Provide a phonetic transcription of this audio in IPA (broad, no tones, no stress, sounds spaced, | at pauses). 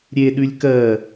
ɾʲ e ɗ ʉ lʲ k ɜ